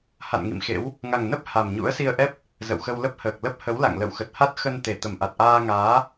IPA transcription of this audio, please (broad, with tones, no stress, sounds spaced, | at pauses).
h a̰˧˨ n ŋ ḭ˧˨ m x ḛ˧˥ w | ŋ a˨˩ ŋ n ə˦˥ p̚ h a˨˩ m ɲ ṵ˧˥ ə̯ s i˧ ə̯ ʔ ɛ˦˥ p̚ | z ə̰˧˨ w x ə˧ w l ə˦˥ p̚ h əː˨˩ k̚ l ə˦˥ p̚ h ə˨˦ w l a̰˧˨ ŋ l ə̰˧˨ w x ə˨˩ t̚ h a˦˥ t̚ x ə˧ n t̪ e˧˩ t̪ ə˧˩ m ʔ a˨˩ t̚ ʔ aː˧ ŋ aː˨˦